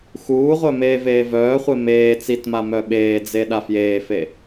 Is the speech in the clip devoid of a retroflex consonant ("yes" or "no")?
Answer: yes